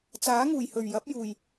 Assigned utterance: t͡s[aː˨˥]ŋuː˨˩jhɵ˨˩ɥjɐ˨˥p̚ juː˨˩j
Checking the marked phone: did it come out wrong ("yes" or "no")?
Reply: no